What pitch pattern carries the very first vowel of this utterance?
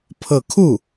falling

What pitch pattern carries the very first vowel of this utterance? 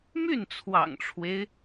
falling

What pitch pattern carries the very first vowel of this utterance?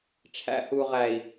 rising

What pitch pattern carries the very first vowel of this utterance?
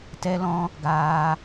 high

